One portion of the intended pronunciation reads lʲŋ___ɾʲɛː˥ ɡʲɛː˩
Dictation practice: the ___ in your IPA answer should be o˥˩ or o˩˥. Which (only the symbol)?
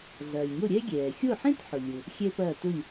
o˥˩